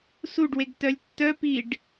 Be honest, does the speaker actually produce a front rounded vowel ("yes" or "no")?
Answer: yes